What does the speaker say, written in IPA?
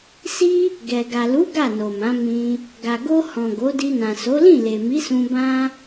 s i˦ | ɡ ɛ˨ ɡ a˨ l u˨˦ ɡ a˦˨ n o˨ m ã˨˦ m ĩ˧ | ɡ a˨ ɡ o˧ h ɔ̃˨ ɡ o˨˦ d i˧ n ã˨ s o˨˦ l ĩ˦˨ l e˨ m i˨˦ s ũ˧ b ã˦

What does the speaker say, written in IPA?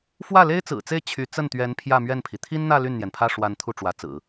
f w ä˥˩ l e˥ ɪ̯ t͡s ɹ̩˨˩ t͡s e˥˩ ɪ̯ t͡ɕʰ y˧˥ t͡s ə˥˩ n t̪ ɥ ɛ˧˥ n pʰ j ä˥˧ m ɥ ɛ˥˩ n pʰ i˩ t̪ʰ i˥ n n̪ ä˥˧ l y˥˩ n n̪ j ɛ˩ n pʰ ä˥˩ ʂ w a˧˥ n t̪ʰ u˥˩ ʈ͡ʂ w ä˧˥ t͡s ɹ̩˨˩˦

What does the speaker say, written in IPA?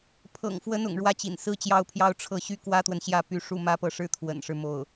pʰ ɤ̰˨˩ ŋ f w ə˧˥ n ʊ̰˨˩ ŋ ɻ w ä˥ t͡ɕ ḭ˨˩ n s ɹ̩˥ t͡ɕ j ɑ˥˧ ʊ̯ pʰ j ɑ˥˧ ʊ̯ ʈ͡ʂʰ ɤ˥˩ ɕ y˥ k w ä˥ t̪ w ə˨ n ɕ j ä˥˩ p y˧˥ ʂ u˥˩ m ä˥ p ɤ˥˩ ʂ ɻ̩˥ t̪ʰ w ə̰˨˩ n ʂ ɻ̩˦ m o˥˩ ʊ̯

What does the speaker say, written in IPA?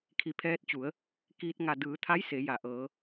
kʰ i˧˩ pʰ ɛː˧ t̚ t͡ɕ u˩˧ ə̯ | k iː˧ t̚ ŋ a˧˩ d ɯː˩˧ t̪ʰ a˧˥ j s e˩˧ j a˩˧ ʔ ɤː˩˧

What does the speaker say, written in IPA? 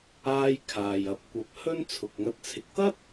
aː˥ j kʰ aː˨ j ɐ˨ p̚ kʷ ɐ˧ p̚ h ɵ˥ n t͡sʰ ʊ˨ k̚ ŋ ɐ˧ t̚ t͡sʰ ɪ˨ k̚ t̪ ɐ˥ t̚

